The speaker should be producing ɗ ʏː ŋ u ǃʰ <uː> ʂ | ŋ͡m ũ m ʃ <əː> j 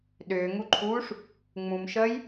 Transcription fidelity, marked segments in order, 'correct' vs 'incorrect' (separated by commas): correct, correct